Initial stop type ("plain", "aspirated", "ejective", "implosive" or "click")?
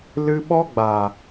implosive